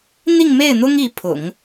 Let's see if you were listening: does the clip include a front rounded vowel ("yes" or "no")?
no